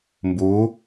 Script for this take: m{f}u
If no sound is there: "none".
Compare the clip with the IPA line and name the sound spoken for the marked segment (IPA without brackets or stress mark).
b